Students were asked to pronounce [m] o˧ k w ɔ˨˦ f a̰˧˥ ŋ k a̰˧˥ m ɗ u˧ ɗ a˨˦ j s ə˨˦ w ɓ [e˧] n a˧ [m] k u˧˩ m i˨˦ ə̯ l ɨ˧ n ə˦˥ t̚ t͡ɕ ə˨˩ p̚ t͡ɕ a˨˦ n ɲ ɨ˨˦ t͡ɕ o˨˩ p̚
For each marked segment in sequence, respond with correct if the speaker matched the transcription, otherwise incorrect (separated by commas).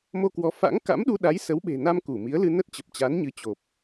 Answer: correct, incorrect, correct